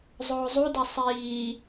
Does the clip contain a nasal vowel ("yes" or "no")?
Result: no